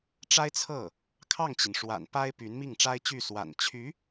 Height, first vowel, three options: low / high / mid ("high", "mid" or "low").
low